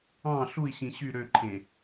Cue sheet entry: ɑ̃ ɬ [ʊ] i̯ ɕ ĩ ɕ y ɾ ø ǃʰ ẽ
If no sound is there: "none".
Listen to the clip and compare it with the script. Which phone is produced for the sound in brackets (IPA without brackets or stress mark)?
u